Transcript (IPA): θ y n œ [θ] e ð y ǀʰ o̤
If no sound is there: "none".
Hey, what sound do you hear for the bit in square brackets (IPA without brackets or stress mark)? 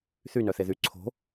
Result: θ